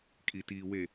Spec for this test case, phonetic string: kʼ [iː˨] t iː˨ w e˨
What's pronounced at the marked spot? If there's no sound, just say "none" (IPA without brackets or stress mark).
i˨